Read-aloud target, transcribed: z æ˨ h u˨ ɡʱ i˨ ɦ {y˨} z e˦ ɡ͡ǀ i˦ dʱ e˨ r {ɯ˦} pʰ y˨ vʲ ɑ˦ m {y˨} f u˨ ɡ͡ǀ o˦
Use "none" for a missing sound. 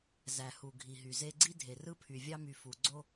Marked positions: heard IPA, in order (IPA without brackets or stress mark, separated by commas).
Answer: y˨, ɯ˦, y˨